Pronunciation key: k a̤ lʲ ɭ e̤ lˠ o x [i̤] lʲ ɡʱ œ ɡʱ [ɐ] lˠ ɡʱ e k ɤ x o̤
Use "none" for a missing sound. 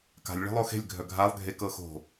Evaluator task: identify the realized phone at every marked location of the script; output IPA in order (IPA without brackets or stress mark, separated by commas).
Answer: e̤, a